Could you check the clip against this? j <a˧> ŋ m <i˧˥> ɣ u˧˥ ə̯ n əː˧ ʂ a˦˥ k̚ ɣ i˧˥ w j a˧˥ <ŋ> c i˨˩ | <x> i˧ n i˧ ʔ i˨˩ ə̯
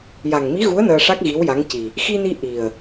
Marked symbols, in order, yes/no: no, yes, yes, yes

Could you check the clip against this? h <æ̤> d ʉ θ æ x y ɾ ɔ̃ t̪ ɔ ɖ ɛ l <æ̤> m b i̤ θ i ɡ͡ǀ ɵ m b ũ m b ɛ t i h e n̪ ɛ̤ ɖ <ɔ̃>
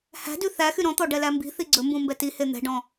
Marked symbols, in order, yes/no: yes, no, yes

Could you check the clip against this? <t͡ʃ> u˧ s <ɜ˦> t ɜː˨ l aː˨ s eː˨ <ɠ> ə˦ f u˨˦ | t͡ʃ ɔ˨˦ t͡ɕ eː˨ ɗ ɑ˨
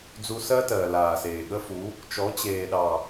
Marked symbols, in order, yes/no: no, yes, yes

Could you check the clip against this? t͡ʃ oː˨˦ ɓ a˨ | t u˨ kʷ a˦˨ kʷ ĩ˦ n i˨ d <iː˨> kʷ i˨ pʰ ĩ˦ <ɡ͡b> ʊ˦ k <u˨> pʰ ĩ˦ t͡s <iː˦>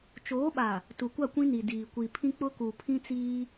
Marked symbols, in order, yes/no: yes, no, yes, yes

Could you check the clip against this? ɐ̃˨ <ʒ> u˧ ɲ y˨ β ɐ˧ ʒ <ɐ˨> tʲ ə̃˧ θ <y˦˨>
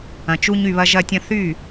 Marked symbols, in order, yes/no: no, no, yes

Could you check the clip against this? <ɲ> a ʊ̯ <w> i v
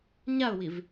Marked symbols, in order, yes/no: yes, yes

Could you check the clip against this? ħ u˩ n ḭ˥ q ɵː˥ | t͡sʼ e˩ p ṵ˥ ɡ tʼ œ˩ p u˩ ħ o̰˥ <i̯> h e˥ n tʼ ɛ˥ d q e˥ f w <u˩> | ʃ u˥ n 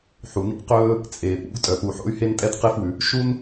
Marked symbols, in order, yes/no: no, no

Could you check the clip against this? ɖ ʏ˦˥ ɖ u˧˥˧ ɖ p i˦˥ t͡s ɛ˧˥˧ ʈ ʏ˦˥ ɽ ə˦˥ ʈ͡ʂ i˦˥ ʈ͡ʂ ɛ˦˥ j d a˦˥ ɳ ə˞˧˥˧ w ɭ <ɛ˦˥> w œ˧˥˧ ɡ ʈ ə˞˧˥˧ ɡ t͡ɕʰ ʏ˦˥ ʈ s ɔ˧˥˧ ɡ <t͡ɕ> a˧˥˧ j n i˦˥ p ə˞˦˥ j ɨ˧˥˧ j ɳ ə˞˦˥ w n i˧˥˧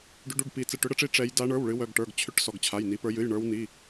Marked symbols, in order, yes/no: no, no

